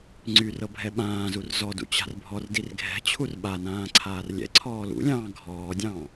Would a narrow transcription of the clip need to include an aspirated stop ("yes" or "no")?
yes